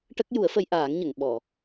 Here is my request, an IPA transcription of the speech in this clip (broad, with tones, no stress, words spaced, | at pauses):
ʈə˦˥k̚ ju˨˩˦ə̯fə˧jʔaː˨˩˦ŋ ɲə˨˩˨ŋ ɓɔ˨˩˨